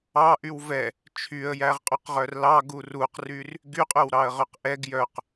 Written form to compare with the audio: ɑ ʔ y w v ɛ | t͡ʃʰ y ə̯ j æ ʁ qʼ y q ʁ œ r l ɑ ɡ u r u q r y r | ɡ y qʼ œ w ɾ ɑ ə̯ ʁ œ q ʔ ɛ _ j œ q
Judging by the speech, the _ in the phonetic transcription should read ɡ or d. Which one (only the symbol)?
ɡ